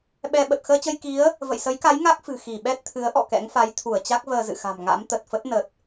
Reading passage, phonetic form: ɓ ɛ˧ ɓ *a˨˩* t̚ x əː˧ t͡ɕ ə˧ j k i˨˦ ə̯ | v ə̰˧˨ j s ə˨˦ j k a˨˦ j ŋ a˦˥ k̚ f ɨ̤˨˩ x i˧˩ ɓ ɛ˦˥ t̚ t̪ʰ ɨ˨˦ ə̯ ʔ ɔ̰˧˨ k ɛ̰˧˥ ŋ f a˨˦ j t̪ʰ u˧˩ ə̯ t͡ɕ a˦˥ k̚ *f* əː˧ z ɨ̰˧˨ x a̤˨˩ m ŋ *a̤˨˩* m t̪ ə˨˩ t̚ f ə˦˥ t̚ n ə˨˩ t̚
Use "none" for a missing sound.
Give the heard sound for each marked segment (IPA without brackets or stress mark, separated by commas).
ə˨˩, v, a̰˧˥